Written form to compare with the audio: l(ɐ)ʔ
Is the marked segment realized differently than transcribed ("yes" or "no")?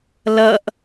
no